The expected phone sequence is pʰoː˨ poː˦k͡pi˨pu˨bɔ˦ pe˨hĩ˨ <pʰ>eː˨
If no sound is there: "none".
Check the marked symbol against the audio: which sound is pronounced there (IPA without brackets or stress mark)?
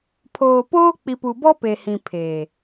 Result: pʰ